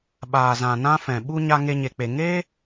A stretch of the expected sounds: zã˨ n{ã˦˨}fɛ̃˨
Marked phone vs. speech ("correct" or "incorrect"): incorrect